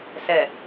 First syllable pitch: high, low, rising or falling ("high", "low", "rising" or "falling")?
low